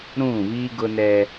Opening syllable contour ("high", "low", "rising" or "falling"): falling